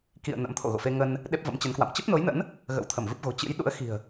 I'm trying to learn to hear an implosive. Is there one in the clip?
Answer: yes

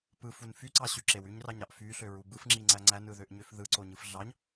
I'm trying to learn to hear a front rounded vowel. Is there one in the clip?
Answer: yes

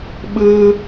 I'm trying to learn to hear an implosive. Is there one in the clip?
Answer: yes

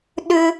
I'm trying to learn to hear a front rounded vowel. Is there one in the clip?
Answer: yes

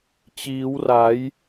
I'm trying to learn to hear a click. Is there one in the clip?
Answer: no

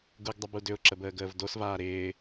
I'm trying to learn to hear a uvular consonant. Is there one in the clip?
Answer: no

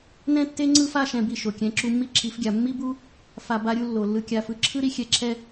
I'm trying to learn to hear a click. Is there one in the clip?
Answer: yes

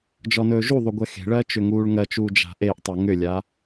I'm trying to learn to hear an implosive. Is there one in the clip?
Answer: no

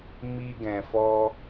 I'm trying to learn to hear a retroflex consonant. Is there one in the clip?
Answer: no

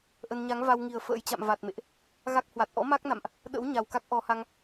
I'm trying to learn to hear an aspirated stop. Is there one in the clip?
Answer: no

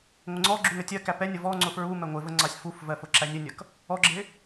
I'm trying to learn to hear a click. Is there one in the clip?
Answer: yes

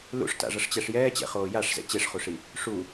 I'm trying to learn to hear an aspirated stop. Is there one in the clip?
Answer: no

